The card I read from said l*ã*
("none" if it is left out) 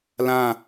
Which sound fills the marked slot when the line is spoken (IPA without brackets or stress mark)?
ã